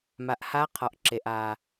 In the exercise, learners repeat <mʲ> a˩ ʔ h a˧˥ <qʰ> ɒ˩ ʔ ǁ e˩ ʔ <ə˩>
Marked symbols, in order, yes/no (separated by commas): no, yes, no